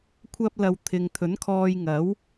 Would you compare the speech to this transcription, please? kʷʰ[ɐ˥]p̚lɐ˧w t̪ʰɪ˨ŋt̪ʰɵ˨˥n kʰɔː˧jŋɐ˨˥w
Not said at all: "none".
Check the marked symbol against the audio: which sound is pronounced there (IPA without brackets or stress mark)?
ɐ˥